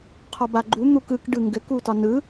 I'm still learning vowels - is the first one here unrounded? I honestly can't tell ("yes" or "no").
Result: no